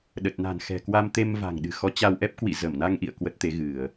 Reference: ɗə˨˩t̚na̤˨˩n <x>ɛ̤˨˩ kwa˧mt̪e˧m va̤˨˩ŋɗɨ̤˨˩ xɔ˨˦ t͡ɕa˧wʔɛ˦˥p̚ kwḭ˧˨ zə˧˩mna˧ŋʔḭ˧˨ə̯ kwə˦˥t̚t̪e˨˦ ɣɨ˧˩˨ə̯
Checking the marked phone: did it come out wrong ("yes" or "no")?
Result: no